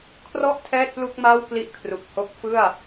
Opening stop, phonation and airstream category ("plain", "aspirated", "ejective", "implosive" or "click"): aspirated